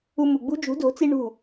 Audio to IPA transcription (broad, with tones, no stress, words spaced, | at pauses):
u˧mu˨ɡ͡bṳ˦ d͡ʒṳ˨˦do̤˨˦t͡si˧ ɳṳ˦˨